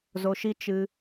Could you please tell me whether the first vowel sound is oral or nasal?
oral